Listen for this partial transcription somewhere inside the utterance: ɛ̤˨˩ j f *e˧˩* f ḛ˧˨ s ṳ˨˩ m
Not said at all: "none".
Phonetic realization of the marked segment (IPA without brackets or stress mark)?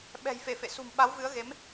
e˧˩